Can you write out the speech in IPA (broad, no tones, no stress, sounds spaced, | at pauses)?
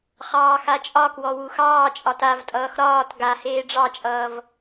χ ɑː x a t͡ʃʼ ɒ k w ɔ w u x ɑː t͡ʃʼ ɒ t a v tʼ ʌː x ɾ ɒː t ɡ a h eː ɖ͡ʐ ɑ t͡ʃʼ ʌː v